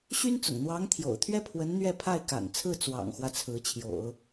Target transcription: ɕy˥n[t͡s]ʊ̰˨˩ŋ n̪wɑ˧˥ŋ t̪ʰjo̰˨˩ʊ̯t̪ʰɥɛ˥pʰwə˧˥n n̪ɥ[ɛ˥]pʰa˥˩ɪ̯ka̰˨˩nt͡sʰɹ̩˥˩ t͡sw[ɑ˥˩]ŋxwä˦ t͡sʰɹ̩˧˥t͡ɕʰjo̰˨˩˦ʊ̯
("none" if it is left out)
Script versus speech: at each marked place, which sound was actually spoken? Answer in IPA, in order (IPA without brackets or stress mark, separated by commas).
t͡s, ɛ˥˧, ɑ̰˨˩